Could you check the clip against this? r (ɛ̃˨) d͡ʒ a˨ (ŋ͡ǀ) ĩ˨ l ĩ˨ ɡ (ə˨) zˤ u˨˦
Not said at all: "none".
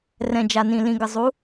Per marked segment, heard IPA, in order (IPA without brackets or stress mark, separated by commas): ɛ̃˨, n, ə˨